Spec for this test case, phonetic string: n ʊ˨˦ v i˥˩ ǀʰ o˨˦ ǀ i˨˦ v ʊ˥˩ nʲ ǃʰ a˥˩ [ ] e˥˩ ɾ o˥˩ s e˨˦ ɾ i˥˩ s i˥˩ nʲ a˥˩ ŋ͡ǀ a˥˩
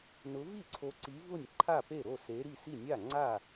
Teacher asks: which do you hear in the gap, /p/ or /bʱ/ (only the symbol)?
p